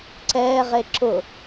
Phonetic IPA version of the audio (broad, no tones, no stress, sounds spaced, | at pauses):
ǀ ɛː ʁ e ǁ ʊ